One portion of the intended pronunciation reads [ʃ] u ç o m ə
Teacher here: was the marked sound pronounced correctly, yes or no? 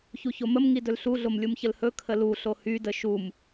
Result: no